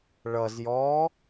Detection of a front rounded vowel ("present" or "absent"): absent